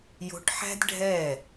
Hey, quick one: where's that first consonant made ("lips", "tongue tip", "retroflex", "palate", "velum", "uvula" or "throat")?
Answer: palate